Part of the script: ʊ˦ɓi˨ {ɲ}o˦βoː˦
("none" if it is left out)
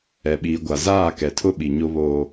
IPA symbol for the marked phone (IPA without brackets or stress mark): ɲ